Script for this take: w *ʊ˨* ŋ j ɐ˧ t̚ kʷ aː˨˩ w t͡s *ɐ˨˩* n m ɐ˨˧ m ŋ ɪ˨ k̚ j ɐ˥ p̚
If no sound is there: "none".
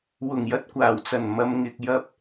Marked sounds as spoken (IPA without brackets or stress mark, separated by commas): ʊ˨˩, ɐ˨˩